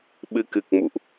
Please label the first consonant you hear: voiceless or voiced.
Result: voiced